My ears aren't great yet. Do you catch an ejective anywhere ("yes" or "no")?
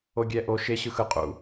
yes